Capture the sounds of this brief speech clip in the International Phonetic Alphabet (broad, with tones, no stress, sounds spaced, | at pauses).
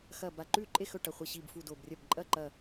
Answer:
x ɐ˧˩ b a˧˩ ǃ ʉː˥˩ ǃʼ e˥˩ x ɵ˥˩ ʈ ɐ˧˩ χʷ i˧˩ ɕ iː˧˩ b f u˧˩ d o˧˩ b rʲ ɐ˥˩ b ǃʼ ɐ˥˩ ǃ ɐ˧˩